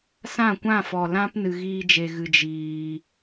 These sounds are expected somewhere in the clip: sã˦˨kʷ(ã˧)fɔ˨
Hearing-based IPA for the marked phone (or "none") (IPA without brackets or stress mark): ã˦˨